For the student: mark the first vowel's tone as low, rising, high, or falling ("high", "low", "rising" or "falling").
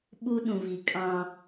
high